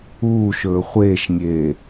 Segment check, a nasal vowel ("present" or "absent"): absent